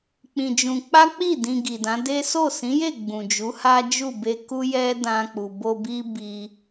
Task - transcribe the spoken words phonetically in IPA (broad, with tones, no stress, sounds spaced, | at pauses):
k͡p ĩ˧ d͡ʒ ũ˧ k͡p a˦ k͡p i˦˨ d ĩ˧ ɡ i˨ d ã˨˦ d e˦ s o˦˨ s ĩ˨˦ j e˦˨ ɡ͡b ũ˨ d͡ʒ u˨˦ h a˦ d͡ʒ u˦˨ b e˧ k u˦ j ɛ˦ d ã˧ k͡p u˨ b o˧ b i˦ b i˧